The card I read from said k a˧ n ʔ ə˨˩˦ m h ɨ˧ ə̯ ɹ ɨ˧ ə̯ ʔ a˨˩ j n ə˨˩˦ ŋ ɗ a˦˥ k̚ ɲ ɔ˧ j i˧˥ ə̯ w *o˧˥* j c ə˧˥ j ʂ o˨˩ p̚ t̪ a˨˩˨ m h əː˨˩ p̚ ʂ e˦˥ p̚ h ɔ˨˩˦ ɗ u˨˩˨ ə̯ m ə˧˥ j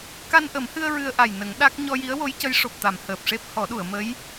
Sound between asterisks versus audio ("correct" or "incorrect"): correct